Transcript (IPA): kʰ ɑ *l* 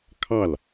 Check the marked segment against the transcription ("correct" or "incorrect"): correct